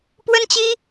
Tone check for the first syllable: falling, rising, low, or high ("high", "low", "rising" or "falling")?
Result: high